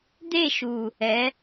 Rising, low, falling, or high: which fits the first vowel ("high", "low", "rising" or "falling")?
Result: falling